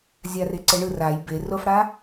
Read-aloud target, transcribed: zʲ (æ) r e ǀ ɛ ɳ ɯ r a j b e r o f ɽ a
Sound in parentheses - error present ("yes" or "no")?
yes